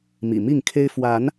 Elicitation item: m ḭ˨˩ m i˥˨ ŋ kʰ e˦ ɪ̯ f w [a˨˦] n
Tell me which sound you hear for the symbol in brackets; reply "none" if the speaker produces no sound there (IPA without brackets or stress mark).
a˨˦